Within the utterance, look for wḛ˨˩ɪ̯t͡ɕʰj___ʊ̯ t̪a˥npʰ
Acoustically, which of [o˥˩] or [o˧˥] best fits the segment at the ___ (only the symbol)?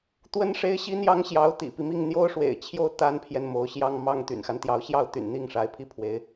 o˥˩